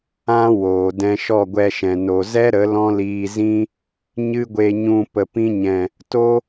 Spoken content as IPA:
ã˦ w oː˨ d ɛ̃˧ ʃ ɔ˦˨ ɡʷ ɛ˧ ʃ ɛ̃˨ n o˨ z ɛ˦ ɾ ə˨˦ l ɔ̃˦ l iː˧ z ĩ˦ | ɲ ɨ˦ ɡʷ e˧ ɲ ũ˧ p ə˨ p ĩ˧ ɲ ɛ̃˨ | t o˦

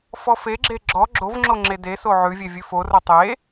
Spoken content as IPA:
f ɔ f e ɡ͡ǁ e ɡ͡ǁ ɔ ɡ͡ǁ o v ŋ͡ǁ o ŋ͡ǁ e d e s o ʕ ʉ vʲ e vʲ ʉ f o r o tˤ e

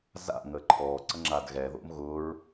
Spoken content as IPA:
z a̰ ŋ əː ǃʰ ɔː ǀ ə ŋ͡ǁ a d ɣ ɛ ð o̰ m ɣ ʊː ɹ

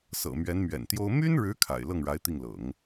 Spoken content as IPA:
s ɤ̰˨˩ m ɥ ɛ˧˥ n m ɥ ɛ̰˨˩ n t̪ j o˥ ʊ̯ m y˥ n ɻ ɻ̩˧˥ kʰ a̰˨˩ ɪ̯ l ɤ˥˩ ŋ ɻ a˧˥ ɪ̯ t̪ i˥˩ ŋ l ɤ̰˨˩˦ ŋ

